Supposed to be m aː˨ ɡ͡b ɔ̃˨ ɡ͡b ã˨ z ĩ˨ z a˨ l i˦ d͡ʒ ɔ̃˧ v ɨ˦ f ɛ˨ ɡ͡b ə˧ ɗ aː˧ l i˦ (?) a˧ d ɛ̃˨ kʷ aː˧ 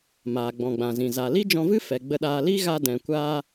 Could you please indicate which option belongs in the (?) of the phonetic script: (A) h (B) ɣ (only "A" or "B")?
B